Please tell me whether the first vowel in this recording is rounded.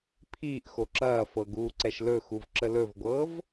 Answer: no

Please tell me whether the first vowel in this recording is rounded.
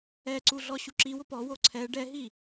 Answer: no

